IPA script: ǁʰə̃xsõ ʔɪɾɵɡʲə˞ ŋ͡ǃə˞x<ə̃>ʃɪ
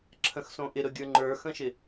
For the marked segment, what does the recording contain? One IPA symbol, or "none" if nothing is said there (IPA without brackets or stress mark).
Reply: ə̃